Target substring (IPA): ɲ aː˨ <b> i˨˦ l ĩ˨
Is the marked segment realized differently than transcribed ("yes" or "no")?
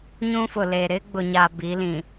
no